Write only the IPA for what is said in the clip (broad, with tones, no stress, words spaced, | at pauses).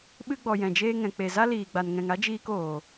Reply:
ɓɨ˧ɡ͡bɔ˨ jɛ̃˨d͡ʒeː˧ŋɛ̃˨ k͡pe˨za˦liː˨ ɡ͡ba˨nŋɛ̃˨ŋa˦d͡ʒiː˧k oː˨